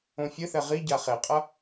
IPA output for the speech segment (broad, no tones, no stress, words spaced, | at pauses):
õfʲɘθɛ ʁi ɟaχeqʼɐ